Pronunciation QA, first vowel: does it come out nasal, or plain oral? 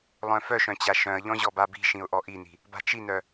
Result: nasal